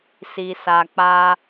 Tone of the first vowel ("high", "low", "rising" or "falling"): low